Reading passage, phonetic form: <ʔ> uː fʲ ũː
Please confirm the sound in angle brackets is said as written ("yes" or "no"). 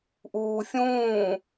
yes